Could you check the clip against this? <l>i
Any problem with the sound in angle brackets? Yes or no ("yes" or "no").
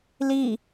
no